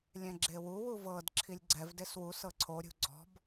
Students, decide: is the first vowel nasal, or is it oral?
nasal